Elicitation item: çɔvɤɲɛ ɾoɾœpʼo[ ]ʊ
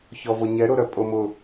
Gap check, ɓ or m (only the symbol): m